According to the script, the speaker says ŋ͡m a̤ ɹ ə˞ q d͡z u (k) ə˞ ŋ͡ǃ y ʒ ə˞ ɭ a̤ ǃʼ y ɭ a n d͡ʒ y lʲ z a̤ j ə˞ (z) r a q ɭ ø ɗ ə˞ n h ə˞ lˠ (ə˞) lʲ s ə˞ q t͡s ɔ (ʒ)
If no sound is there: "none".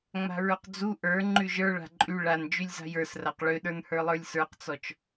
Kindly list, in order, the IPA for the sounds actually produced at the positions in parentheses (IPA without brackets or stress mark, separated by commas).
ʔ, s, ə˞, t͡ʃ